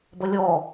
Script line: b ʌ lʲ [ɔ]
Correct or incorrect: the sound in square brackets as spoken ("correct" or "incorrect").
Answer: correct